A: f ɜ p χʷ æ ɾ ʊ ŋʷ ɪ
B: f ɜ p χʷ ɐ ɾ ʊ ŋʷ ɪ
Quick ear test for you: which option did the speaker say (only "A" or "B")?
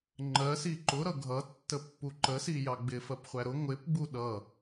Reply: A